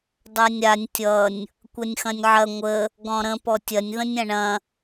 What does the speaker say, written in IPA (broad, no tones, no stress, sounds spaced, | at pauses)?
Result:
dˤ a nʲ ɾ a nʲ tʲ ʌ nʲ | kʷ ɐ nʲ x ɐ̃ nʲ ʕ ɐ ŋʷ ə | ɡ ɔ̃ ɾ ə̃ p ɔ tʲ ɐ nʲ ð ə̃ nʲ ɐ̃ ɳ ɐ̃